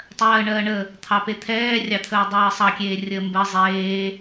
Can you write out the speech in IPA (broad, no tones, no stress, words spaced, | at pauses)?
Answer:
tˤɜːɳɜːɳə | t̪ʰɑpet̪ʰɛː rʲɑt̪ʰəːdˤɜːsˤɑ kʲeːrʲəːmbɜ zˤeː